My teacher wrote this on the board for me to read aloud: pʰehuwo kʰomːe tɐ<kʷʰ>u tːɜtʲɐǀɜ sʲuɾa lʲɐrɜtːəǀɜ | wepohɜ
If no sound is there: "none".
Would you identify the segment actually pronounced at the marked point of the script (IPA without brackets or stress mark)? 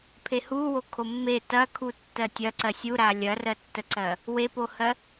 kʰ